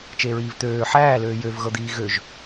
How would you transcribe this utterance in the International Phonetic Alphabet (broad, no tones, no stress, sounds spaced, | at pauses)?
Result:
t͡ʃ e ɹ iː v t̪ øː ħ æː l øː j ø v ɣ ɤ d̪ iː ɣ ø ʒ